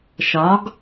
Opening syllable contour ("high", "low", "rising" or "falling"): rising